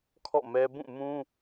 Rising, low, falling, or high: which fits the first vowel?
falling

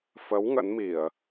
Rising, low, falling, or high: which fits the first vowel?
rising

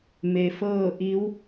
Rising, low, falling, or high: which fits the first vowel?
low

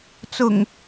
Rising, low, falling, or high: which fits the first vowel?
low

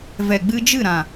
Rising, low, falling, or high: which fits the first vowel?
low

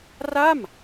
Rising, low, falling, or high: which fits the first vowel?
falling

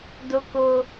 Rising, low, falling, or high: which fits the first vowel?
high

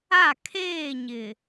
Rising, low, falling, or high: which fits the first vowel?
falling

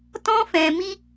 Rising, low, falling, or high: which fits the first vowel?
high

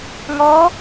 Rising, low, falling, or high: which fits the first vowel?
rising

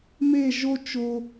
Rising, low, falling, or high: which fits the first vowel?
falling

